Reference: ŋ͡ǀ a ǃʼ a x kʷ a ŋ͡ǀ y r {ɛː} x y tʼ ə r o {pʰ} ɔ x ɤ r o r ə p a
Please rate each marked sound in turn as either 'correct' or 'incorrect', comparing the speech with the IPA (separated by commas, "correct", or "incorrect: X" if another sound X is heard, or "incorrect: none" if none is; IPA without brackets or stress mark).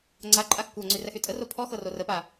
incorrect: ɛ, correct